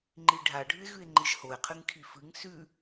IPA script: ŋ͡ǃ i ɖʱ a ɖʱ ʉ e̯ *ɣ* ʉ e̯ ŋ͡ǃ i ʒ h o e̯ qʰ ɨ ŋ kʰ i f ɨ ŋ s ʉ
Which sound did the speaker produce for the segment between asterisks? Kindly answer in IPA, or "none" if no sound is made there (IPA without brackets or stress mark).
ɣ